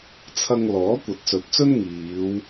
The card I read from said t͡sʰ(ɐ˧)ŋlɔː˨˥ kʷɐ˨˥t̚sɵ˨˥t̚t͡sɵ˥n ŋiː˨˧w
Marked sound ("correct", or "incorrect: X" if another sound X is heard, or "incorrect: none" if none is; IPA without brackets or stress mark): correct